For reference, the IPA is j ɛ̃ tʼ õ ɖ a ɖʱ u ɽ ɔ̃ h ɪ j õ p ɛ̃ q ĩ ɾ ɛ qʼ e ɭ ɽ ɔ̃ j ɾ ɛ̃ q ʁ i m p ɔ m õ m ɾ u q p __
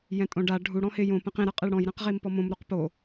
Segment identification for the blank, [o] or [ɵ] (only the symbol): o